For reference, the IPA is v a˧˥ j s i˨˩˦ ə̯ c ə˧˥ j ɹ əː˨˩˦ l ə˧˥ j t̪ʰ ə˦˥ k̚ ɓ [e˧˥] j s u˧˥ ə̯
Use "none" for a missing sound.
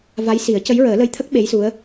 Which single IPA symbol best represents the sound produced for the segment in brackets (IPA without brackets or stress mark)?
e˧˥